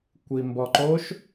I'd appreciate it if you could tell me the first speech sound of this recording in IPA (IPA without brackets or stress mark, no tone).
kʷ